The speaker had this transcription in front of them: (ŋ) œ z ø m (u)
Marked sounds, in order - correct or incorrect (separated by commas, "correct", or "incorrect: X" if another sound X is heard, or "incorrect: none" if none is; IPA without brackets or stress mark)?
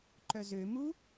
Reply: incorrect: ǃ, correct